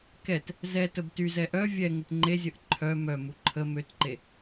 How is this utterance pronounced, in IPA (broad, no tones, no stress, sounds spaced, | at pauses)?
k ɛ t | z ɛ t ə b t y z ɛ ʔ œ vʲ ɛ ŋ ə t ŋ͡ǃ e zʲ ə ʔ ǃʰ œ m œ m u ǃʰ ə m ø t ǃ e